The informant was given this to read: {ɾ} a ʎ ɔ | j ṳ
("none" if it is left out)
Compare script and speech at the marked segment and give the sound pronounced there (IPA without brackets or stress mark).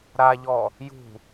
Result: ɾ